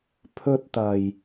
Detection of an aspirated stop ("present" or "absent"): present